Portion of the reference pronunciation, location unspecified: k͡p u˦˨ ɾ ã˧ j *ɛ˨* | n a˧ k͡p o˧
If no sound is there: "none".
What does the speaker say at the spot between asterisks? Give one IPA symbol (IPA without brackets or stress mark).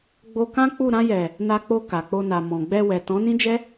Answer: ɛ˨